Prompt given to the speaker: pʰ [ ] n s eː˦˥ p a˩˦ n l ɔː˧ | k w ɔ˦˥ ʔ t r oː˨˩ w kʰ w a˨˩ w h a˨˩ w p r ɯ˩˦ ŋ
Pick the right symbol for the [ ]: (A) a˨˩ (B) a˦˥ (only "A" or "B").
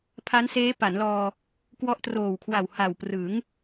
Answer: B